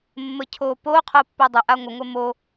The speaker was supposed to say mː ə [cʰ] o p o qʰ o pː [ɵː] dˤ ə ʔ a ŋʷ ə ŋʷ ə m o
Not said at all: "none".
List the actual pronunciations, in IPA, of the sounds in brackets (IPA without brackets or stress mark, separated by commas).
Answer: cʰ, ɵ